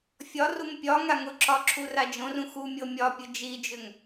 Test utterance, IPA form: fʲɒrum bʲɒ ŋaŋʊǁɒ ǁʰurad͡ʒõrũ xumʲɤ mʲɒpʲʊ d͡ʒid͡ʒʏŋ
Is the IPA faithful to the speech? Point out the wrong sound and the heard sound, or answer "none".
bʲ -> pʲ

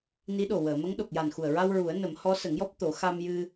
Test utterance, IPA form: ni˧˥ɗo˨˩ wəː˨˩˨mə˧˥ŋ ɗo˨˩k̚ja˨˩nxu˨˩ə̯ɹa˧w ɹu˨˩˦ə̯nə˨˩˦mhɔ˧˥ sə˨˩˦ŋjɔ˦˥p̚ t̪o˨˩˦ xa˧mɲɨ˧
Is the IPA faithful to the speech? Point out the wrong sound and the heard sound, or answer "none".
ɲ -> j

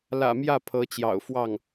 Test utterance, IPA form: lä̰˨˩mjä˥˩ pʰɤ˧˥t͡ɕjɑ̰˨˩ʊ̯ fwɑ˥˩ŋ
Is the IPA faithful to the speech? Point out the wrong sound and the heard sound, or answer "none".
none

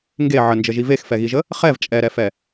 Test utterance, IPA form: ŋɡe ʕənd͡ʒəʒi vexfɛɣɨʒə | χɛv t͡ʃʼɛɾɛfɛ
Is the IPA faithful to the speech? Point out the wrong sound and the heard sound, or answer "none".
ɨ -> i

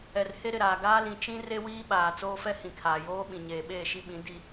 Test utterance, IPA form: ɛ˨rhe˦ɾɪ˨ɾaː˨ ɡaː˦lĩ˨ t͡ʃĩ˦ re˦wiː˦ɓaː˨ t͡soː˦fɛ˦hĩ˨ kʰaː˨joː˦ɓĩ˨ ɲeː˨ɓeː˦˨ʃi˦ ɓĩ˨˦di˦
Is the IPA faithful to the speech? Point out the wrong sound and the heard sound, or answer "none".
none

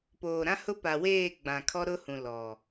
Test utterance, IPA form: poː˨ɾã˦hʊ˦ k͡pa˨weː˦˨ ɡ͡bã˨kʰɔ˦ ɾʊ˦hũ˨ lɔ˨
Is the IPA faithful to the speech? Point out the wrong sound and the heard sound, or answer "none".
k͡p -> p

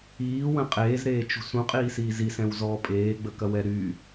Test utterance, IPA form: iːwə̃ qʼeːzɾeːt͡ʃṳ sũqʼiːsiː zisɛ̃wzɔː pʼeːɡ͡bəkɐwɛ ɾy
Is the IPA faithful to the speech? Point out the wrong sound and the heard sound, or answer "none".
none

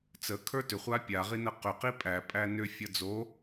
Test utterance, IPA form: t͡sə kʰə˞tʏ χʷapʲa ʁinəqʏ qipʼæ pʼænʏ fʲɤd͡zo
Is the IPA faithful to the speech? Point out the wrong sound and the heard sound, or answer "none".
none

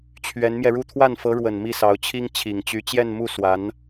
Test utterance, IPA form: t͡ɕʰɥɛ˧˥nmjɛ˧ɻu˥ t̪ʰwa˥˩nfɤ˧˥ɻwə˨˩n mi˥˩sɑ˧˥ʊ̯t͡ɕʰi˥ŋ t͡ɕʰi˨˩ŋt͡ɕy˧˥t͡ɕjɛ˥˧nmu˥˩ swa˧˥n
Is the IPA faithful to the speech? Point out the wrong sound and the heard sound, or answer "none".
none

